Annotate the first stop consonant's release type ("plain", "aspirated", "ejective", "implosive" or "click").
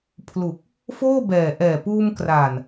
aspirated